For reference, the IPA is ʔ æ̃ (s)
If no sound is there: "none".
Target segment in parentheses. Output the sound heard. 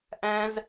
z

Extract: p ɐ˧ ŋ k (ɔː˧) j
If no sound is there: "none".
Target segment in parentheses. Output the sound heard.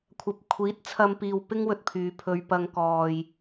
ɔː˨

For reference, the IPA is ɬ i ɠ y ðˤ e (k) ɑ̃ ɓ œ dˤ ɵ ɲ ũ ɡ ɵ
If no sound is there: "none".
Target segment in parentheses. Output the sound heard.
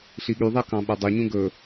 k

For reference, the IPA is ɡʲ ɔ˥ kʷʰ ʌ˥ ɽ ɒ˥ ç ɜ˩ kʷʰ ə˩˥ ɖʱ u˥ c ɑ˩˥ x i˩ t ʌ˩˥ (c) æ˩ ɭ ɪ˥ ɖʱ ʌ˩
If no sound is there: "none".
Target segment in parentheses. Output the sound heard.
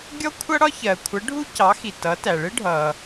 t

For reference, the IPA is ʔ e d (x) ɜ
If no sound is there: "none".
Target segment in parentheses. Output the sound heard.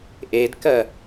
k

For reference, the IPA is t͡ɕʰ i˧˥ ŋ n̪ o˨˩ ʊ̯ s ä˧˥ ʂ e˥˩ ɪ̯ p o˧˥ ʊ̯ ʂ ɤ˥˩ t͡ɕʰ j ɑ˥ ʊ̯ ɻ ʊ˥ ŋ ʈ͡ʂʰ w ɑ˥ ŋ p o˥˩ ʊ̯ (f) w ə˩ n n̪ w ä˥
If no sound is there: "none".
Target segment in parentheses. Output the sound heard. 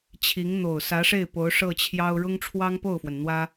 f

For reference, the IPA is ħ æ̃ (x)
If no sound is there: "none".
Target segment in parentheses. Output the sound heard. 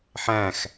x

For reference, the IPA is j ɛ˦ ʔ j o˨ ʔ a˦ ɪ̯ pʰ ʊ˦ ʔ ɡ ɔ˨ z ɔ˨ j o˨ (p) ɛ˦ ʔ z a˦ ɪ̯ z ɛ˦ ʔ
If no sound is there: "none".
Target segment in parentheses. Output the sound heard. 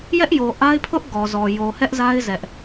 h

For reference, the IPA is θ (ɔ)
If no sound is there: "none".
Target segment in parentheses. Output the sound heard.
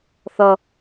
ʌ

